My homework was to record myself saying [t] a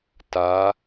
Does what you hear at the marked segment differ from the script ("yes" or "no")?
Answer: no